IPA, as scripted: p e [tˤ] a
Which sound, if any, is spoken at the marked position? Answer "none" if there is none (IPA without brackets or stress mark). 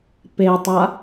tˤ